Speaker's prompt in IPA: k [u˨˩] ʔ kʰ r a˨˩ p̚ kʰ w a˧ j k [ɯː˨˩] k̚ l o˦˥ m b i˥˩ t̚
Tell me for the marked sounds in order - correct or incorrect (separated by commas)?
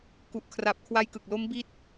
correct, incorrect